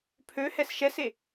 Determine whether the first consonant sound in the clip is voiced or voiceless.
voiceless